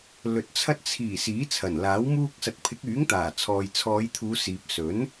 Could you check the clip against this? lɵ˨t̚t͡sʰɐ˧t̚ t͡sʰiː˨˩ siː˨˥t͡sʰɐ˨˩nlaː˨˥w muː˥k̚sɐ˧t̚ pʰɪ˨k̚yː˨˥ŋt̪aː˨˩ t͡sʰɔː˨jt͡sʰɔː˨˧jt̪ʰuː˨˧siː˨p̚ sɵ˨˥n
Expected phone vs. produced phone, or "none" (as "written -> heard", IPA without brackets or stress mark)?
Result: ɪ˨ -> ɪ˨˥